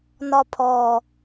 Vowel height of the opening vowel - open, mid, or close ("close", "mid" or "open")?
open